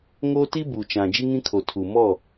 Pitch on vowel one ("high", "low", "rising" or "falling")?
high